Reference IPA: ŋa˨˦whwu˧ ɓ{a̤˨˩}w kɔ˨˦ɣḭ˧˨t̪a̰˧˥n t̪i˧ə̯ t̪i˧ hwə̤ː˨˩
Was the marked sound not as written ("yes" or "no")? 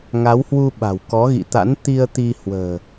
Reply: no